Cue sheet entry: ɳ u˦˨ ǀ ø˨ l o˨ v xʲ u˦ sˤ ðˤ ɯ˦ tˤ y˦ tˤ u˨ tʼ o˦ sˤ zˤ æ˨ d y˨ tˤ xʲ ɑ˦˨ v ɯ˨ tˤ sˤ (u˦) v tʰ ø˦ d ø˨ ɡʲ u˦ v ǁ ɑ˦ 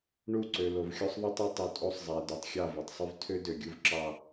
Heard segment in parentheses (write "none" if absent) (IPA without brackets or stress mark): y˦